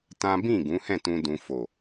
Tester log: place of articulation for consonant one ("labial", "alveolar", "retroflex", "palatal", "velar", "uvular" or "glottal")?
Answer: alveolar